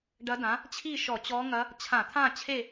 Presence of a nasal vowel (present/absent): present